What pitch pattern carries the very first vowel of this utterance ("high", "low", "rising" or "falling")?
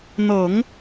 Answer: low